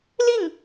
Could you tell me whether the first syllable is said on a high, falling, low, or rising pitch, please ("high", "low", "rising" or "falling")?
falling